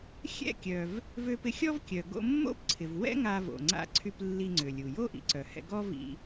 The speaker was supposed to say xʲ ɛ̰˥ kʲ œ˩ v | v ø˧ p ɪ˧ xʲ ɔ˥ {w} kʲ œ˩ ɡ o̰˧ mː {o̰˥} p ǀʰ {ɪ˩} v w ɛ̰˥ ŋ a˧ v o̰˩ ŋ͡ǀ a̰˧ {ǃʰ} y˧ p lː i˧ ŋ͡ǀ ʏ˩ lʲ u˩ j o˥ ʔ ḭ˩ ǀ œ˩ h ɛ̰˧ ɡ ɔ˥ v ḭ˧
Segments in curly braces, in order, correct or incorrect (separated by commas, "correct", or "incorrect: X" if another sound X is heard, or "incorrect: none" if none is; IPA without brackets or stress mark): incorrect: v, correct, correct, incorrect: ǀʰ